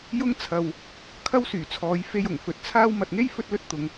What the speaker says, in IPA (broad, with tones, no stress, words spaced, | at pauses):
jʊ˥ŋ t͡sʰɐ˨w | kʰɐ˥wsyː˨˩t͡sʰɔː˨˧j fe˧j ʊ˨˩ŋfɵ˨t̚t͡sʰaː˥w mɐ˨t̚ŋe˥j fɵ˥t̚lɵ˥t̚t̪ʊ˨˧ŋ